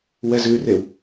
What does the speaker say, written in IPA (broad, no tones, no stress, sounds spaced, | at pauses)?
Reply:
w ɛ z ʉ r e w